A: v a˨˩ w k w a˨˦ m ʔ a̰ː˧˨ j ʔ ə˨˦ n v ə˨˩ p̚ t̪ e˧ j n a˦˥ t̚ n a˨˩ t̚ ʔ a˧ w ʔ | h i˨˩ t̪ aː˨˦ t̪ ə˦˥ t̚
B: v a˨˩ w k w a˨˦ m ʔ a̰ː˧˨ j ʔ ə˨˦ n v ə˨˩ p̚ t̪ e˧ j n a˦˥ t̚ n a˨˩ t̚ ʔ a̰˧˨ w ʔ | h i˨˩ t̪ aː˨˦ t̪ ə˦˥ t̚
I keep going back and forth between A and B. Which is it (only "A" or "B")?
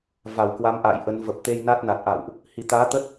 B